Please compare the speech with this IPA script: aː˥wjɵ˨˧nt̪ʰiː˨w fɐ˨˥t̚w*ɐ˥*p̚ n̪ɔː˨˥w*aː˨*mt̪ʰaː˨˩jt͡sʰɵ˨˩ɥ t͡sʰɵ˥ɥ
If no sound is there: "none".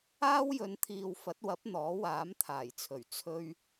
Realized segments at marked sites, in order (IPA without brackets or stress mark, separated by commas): ɐ˨˥, aː˨˥